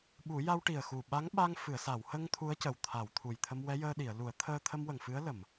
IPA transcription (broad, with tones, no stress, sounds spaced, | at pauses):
ɓ u˨˩˦ j a˧ w ʈ i˨˩ ə̯ x u˨˩ ɓ a˧˥ ŋ ɓ a˧ ŋ f ɨ˨˩˨ ə̯ s a˨˩˨ w h ə˧ ŋ t̪ʰ u˧˥ ə̯ c ə˨˩˨ w t̪ʰ a˨˩˨ w t̪ʰ u˨˩ j t̪ʰ ə˧ m w ɛ˧˥ j əː˧ ɗ i˨˩˨ ə̯ l u˨˩˦ ə̯ t̪ʰ əː˧ t̪ʰ ə˧ m w ə˨˩ ŋ f ɨ˧˥ ə̯ l ə˨˩˨ m